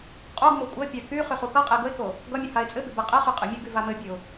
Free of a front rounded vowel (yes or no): no